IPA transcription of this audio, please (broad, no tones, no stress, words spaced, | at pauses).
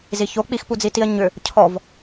ziço k͡pixpud͡zitiɐ̯ ɲʏ | cʰɔv